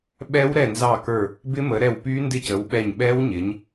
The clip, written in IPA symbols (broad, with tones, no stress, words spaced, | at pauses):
ɓɛ˦˥wɾɛ˦˨ nzɑ˦˨kə˞˦˨ | bɪ˦˥mə˨˦ɾɛ˦˨w py˦˥ndɪ˦˨cə˨˦w ɓɛ˦˨ɲ ɓɛ˦˥wɲɪ˨˦ɲ